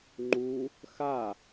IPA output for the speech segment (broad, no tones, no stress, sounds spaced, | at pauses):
ŋ͡ǃ u | x a